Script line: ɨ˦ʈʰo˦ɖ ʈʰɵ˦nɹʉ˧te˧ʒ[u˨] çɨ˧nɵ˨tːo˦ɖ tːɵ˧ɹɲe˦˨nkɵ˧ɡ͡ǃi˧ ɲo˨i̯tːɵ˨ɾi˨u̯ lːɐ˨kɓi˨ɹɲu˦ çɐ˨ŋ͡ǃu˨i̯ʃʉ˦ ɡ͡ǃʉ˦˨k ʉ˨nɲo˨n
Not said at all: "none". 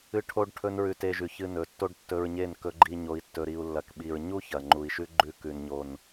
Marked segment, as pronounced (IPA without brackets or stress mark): ʉ˨